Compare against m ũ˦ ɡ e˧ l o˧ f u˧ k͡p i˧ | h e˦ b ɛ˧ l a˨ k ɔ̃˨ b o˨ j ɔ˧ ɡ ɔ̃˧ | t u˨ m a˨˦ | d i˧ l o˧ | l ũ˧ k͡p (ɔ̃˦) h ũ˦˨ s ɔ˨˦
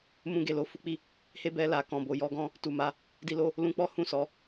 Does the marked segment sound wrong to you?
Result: yes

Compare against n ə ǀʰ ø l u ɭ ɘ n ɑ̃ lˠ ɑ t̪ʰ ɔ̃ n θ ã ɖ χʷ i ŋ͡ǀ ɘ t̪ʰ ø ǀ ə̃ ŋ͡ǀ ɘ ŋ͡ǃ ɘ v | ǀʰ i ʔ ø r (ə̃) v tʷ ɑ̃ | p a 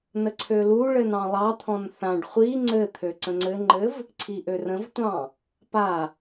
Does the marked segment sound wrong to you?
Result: no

